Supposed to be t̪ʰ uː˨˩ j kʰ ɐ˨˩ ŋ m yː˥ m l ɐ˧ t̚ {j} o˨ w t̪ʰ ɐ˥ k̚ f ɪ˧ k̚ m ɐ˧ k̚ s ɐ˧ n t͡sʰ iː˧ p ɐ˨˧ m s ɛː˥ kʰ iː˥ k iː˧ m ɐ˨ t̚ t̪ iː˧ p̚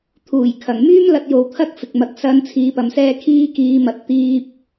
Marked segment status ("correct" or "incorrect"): correct